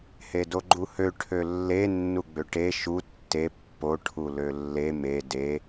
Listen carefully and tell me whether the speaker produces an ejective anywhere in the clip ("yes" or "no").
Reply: no